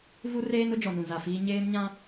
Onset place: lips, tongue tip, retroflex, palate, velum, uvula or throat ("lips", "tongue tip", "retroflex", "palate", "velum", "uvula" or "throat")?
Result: lips